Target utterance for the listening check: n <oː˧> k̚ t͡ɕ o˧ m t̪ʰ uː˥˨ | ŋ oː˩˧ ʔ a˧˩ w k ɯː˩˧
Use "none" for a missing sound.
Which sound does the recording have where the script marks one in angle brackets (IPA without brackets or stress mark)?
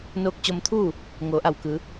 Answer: oː˧